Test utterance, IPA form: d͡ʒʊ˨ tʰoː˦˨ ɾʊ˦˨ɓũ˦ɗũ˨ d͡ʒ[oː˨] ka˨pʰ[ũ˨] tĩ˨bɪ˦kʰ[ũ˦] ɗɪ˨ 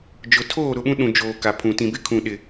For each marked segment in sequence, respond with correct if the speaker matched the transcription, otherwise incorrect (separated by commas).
correct, correct, incorrect